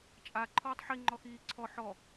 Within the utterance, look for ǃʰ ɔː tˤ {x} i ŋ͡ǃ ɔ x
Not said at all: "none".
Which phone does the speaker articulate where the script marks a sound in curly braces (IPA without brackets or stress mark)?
ħ